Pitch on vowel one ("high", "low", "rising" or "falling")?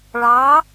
rising